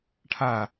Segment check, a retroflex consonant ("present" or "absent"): present